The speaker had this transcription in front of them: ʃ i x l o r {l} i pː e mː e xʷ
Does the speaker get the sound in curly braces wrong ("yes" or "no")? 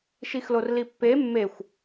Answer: no